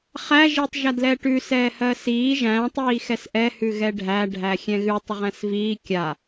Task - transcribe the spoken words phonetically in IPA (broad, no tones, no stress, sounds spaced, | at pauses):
χ æ ʒ i tˤ ʒ a d l ɛː ʈ ʉ s ɛː h ɜ s iː ʒ æ̃ tˤ iː x ɛ s ʔ ɛ h ʉ ɣ ɛ ɖʱ æ ɖʱ æ xʲ ɛ̃ ɣ ʉ tˤ ə ʁ æ̃ s v iː kʲ a